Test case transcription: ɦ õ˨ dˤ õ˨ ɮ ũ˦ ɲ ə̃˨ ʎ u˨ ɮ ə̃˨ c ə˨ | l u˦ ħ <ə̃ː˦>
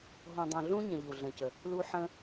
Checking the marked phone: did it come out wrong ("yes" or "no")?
no